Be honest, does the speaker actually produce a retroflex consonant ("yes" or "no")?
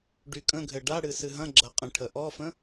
yes